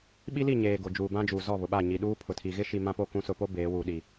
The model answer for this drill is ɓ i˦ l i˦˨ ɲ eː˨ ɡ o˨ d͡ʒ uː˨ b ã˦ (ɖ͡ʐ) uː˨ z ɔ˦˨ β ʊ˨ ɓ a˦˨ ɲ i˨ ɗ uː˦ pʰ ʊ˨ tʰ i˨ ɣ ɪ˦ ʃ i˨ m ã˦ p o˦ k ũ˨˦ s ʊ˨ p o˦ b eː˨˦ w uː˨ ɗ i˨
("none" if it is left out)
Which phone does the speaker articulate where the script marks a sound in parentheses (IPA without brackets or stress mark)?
d͡ʒ